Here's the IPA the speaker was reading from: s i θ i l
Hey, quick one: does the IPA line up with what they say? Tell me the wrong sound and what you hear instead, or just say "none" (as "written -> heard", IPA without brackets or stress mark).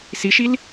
θ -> ʃ